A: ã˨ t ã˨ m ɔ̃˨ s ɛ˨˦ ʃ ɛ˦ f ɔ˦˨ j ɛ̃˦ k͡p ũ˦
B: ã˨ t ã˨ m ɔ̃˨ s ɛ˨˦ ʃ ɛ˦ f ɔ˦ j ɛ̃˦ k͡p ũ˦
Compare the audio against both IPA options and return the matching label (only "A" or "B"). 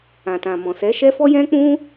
B